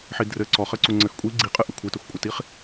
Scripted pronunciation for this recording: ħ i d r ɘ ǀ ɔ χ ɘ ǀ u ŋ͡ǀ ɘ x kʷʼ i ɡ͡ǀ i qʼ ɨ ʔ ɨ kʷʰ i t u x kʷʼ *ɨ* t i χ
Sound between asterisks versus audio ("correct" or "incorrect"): correct